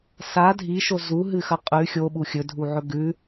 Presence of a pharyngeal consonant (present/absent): present